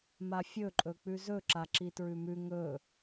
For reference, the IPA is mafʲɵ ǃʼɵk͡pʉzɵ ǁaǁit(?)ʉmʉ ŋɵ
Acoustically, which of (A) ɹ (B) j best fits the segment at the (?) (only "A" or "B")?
A